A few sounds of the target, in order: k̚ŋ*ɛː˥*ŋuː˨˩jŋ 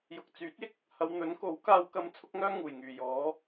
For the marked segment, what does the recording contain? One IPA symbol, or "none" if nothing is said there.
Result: œː˥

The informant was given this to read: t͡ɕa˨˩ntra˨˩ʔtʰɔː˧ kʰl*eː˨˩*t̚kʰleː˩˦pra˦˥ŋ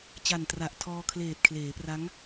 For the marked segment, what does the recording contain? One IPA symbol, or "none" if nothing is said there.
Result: eː˨˩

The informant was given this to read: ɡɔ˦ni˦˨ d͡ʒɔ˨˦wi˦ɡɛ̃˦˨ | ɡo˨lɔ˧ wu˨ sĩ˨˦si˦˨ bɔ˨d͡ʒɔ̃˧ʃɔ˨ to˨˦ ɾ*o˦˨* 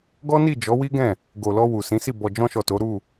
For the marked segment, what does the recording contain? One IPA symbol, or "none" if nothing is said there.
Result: u˦˨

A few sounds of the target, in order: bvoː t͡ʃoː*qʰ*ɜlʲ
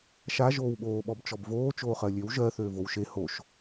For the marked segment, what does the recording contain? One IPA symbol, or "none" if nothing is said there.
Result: χ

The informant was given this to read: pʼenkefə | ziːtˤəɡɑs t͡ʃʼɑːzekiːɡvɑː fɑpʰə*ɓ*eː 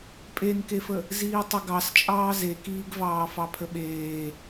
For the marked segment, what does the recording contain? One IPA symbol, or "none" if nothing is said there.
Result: ɓ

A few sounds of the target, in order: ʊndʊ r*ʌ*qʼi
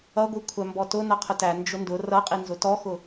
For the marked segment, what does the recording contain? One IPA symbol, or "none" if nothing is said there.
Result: ʌ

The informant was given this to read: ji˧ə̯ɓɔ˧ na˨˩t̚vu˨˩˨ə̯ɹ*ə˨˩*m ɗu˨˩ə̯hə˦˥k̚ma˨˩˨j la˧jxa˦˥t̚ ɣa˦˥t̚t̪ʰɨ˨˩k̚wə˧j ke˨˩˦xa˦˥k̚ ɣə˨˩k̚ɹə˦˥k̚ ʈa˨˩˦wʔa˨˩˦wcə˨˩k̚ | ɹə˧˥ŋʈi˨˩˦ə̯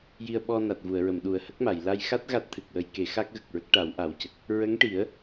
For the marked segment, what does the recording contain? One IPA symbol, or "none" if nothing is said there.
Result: ə˨˩˨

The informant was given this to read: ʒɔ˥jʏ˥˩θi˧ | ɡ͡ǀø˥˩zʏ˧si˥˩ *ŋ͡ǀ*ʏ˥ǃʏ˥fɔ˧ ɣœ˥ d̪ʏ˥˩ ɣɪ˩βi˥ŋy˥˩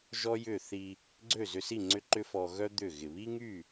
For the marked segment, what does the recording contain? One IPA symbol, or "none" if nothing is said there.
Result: ŋ͡ǀ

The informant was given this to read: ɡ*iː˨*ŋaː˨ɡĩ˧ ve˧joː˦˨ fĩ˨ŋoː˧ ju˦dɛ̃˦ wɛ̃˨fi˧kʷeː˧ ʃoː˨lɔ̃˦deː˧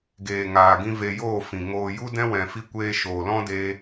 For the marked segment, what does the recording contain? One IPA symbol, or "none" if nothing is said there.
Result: eː˨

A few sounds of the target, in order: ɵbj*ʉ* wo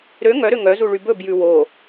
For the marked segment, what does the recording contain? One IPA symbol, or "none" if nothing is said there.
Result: ʉ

